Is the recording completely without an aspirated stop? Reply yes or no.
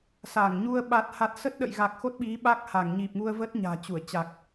yes